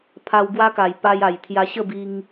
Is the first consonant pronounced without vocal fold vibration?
yes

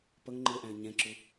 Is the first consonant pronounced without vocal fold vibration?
yes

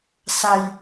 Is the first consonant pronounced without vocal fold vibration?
yes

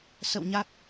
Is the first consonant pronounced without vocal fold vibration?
yes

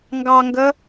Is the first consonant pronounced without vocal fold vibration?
no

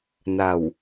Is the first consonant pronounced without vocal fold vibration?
no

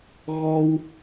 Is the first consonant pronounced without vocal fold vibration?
no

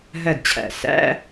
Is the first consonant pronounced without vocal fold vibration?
no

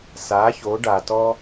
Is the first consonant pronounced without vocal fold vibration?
yes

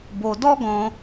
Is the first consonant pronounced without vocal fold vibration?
no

